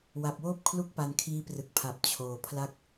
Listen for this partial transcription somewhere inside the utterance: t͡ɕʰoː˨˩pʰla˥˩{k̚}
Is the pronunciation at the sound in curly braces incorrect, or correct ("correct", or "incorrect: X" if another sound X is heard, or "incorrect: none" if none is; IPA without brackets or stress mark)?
correct